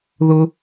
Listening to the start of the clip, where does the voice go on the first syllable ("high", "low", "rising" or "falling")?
high